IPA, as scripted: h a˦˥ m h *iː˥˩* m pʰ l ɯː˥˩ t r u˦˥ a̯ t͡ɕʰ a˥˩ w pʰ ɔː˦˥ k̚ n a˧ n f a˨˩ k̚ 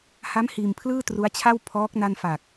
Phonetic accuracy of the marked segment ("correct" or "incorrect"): incorrect